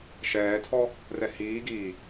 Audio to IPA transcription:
ʃ ɛː tʰ ɔ | r ɛ h iː ɡ iː

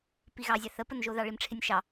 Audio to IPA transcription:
p i ɣ ɑ zʲ ɑ θ ə p ə n ʒ o ð ɑ ɭ i m ʈ͡ʂʰ ɪ nʲ ʃ ɑ

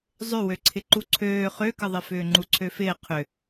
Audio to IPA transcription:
zˤ ʏ w ø ǀʰ ɪ ǃ u ǀʰ øː χ ø k ə ðˤ ɪ f ʏː ŋ͡ǃ u ǀʰ ø f ɪː qʰ ʏ

